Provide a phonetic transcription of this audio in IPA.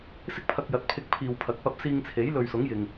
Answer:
s ɪ˥ k̚ pʰ ɐ˧ k̚ j ɐ˨˥ t̚ pʰ ɪ˧ k̚ pʰ iː˨ w pʰ ɐ˨˥ k̚ p ɐ˧ p̚ s iː˧ ŋ t͡sʰ e˨˥ j l ɵ˨ ɥ s ʊ˨˥ ŋ j ɪ˨ ŋ

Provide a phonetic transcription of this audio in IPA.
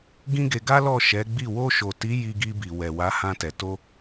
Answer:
ɡ ĩ˦ ɡ e˧ ɡ a˦ l ɔ˦˨ ʃ ɛ˨˦ ɡ͡b i˦˨ w o˧ ʃ o˨ t i˨˦ j i˧ ɡ i˧ b i˨ w ɛ˨ w a˨˦ h ã˧ t ɛ˨ t o˧

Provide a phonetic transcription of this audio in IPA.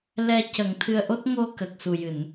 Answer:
l ɛ˧ c ə˨˩˦ ŋ t̪ʰ ɨ˧ ə̯ ʔ o˦˥ t̚ ŋ o˧ k ə˨˩ k̚ s u˨˩ j ɨ˨˩˨ n

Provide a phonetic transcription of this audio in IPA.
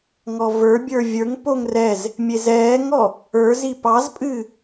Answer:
ŋ ɔ v ə˞ bʲ ə˞ vʲ ə˞ ŋ p o ŋ r ɛ z | mʲ e z ɛː ŋ ɔ | ə˞ z i p ɑ z pʼ ɨ

